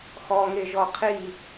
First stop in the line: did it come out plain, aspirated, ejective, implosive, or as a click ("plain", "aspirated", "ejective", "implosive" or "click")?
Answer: aspirated